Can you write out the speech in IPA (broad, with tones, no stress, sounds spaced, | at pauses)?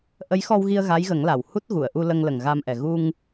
ʔ ə˧˥ j x ɔ˧ w ɣ i˧ ə̯ ɣ a˧˥ j ɣ ə˨˩˦ ŋ l a˨˩ w h u˦˥ t̚ ɣ u˨˩˨ ə̯ ʔ u˧ l ə˧ ŋ l ə˨˩ ŋ ɣ a˧ m ʔ ɛ˨˩ ɣ u˧ ŋ